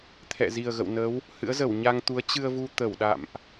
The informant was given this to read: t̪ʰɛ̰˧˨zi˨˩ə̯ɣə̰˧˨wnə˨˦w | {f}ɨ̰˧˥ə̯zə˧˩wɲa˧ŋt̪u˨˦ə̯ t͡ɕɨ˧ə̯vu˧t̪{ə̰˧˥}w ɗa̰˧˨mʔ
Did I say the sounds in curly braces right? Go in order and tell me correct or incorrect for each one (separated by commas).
incorrect, incorrect